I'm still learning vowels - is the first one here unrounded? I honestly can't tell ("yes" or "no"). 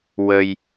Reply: yes